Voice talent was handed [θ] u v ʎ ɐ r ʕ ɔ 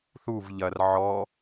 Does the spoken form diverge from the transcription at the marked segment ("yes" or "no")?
no